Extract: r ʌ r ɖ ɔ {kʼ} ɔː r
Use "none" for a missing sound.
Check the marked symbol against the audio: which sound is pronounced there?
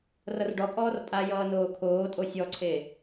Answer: kʼ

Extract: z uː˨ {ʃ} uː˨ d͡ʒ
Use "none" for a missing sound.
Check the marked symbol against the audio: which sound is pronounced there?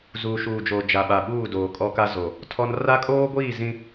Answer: ʃ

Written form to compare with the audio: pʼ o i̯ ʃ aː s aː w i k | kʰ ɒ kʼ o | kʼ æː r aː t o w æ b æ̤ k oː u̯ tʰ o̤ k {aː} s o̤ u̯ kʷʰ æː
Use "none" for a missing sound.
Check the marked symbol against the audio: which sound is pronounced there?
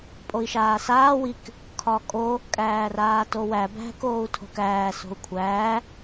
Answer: æː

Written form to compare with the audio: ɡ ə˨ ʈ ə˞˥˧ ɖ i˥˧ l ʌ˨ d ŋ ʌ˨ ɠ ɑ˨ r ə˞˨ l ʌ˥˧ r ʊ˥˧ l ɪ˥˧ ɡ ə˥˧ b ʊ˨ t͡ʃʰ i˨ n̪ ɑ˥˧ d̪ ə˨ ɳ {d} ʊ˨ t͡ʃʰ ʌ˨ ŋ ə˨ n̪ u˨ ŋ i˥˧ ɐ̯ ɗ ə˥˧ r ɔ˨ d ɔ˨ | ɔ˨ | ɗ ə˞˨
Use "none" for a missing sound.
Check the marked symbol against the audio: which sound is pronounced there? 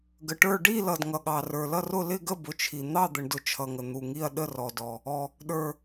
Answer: d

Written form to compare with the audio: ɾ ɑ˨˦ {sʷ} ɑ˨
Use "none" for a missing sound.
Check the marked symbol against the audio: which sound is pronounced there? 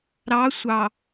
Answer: sʷ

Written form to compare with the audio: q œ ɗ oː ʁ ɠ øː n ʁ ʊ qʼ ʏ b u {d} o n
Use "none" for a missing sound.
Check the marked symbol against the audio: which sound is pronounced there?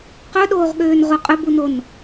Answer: n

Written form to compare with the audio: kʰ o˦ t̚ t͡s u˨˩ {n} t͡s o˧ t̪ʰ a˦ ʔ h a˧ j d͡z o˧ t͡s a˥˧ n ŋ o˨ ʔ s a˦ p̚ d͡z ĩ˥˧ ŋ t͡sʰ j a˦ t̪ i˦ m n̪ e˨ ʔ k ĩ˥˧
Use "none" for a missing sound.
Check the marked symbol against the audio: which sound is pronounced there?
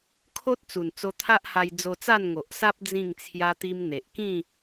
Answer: n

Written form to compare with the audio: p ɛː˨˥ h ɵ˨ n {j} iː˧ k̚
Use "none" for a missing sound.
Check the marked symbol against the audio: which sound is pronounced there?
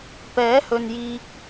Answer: j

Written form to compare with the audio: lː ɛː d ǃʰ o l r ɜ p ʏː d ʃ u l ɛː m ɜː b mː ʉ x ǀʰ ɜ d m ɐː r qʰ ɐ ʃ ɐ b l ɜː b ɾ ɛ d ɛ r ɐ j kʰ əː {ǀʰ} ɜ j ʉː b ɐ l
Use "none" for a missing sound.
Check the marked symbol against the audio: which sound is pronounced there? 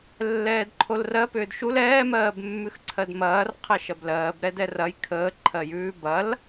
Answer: ǃʰ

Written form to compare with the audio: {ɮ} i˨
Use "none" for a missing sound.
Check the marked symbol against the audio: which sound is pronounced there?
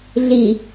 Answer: ɮ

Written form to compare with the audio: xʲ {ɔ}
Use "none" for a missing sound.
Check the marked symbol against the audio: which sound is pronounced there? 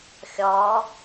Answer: ɔ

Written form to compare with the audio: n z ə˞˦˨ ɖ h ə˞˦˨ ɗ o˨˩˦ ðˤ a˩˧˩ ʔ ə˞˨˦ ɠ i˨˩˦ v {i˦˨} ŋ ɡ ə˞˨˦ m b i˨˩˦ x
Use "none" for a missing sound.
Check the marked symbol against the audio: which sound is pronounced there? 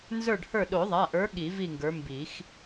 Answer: i˦˨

